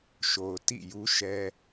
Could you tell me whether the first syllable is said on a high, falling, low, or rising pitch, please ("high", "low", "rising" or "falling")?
low